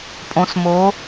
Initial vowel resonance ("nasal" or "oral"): nasal